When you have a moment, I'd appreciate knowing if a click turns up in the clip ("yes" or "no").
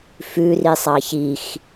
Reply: no